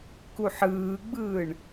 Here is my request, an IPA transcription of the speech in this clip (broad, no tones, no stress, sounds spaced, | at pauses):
k u ħ ɯː ɡ͡b ɯː ɳ